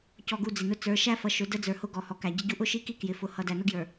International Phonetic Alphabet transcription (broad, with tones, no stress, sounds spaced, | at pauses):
c ɔ˨ ɡ u˨ d͡z ɪ˨ n ʊ˦ t͡s ə˞˨˦ ʃ æ˦ f ʌ˨ ʃ ʊ˨˦ d ə˦ d͡z ə˞˨ h ʊ˦ ɡ ɔ˨ h ɔ˨ k æ˨ ɟ ɪ˦ ɟ u˦ ʔ ʊ˦ ʃ i˦ k i˦ k j ɪ˨ f ʊ˨ h ʌ˨ d æ˨ n ʊ˦ ɡ j ə˞˨